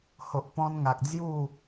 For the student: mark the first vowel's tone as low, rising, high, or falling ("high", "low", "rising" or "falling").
low